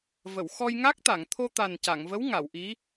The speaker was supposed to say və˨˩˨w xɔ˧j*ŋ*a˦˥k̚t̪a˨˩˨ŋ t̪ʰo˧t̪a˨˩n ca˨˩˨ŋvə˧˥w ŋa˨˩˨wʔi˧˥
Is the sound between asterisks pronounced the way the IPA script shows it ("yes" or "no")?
yes